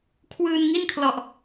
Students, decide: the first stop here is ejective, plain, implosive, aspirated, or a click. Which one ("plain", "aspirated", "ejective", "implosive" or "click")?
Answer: aspirated